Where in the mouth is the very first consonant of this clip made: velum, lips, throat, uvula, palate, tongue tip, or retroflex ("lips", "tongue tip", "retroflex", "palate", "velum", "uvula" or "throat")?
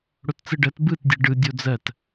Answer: retroflex